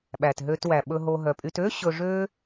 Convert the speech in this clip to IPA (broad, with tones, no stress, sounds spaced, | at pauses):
ɓ æ˩ t ɦ ø˨ t w æ˩ ɓ ɵ˨ ɦ o˨ ɦ œ˩ pʼ y˨ t ø˥ ɕ ɵ˨ ʐ ø˦